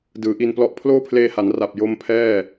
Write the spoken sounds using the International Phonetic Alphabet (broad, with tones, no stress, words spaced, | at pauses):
dɯː˩˦ʔi˧nplɔ˦˥ʔ pʰloː˥˩pʰleː˧ha˩˦n ra˨˩p̚ jo˦˥mpʰɛː˥˩